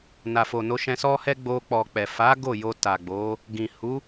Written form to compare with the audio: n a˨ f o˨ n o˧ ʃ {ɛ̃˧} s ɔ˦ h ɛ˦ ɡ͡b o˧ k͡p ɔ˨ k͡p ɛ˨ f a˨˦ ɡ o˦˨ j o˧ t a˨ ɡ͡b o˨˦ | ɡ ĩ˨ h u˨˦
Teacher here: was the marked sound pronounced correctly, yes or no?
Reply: yes